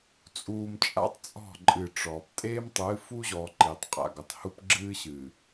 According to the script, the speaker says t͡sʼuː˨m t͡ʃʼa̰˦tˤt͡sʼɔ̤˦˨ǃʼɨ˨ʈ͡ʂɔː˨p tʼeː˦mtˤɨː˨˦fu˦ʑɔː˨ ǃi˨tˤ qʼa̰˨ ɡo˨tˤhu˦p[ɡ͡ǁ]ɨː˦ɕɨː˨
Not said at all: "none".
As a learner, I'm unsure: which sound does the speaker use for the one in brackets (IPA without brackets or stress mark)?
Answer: ɡ͡ǁ